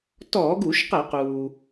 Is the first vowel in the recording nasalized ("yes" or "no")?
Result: no